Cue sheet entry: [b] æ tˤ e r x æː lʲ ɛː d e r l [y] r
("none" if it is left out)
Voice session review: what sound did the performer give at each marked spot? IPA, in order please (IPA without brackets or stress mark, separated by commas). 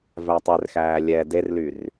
v, y